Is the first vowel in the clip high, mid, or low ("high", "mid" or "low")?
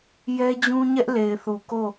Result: mid